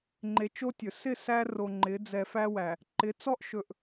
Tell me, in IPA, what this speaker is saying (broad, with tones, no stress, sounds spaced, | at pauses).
ŋ͡ǃ e˨ t͡ʃ o˦ tʲ ɵ˨ s ɪ˦˨ s æ˦ r o˨ ŋ͡ǃ ɪ˨˦ d͡z ɛ˨ f æ˦ w æ˨ | ǃ ɪ˨˦ t͡s ɔ˦ ʔ ʃ ɵ˨ ʔ